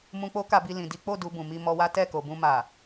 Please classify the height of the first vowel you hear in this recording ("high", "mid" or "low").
high